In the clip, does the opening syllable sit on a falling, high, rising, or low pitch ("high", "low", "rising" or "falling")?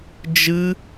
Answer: high